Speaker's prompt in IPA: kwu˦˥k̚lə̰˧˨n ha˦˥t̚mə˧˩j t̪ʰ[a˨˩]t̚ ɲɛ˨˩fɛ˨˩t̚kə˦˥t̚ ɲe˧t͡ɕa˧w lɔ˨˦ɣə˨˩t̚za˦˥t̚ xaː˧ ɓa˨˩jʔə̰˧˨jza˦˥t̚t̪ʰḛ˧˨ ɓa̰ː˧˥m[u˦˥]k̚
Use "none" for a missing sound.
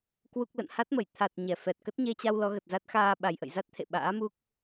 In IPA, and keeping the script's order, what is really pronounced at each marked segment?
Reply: a˨˩, u˦˥

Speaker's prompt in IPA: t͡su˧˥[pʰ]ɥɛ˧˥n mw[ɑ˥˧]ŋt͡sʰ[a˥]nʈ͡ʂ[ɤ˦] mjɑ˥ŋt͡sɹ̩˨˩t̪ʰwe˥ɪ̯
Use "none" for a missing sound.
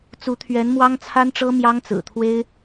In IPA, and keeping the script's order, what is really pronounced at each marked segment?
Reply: t̪ʰ, ɑ˥, a˥, ɤ˥

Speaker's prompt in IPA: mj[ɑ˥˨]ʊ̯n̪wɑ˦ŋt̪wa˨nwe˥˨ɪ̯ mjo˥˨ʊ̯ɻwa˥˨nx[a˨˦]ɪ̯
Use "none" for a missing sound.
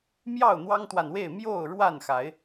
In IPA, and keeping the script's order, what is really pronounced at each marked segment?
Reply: ɑ˥˨, a˨˦

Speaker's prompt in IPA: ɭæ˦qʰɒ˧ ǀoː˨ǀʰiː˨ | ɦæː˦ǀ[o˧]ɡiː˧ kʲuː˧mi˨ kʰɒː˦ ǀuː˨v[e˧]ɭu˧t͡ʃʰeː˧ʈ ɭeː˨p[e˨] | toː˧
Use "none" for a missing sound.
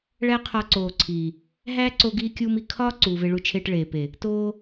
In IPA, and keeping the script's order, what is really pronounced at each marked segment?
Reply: o˧, e˧, e˨

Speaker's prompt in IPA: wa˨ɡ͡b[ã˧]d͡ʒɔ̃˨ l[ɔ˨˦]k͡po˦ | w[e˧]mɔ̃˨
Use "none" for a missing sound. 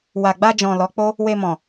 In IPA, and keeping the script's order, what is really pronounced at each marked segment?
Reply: a˧, ɔ˨˦, e˧

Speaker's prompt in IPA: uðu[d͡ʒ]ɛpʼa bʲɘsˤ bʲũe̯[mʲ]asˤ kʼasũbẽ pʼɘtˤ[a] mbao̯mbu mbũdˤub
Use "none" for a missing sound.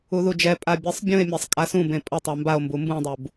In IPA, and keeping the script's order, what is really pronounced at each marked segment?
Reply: d͡ʒ, mʲ, a

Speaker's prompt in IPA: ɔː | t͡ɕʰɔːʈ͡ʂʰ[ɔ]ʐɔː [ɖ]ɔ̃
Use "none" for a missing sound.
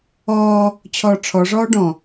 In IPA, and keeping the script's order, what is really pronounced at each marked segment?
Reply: ɔ, ɖ

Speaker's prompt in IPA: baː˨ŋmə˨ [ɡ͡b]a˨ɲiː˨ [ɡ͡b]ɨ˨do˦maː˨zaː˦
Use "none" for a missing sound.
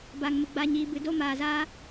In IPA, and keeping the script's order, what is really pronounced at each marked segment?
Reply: ɡ͡b, b

